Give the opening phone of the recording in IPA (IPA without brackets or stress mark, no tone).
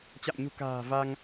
t͡ɕ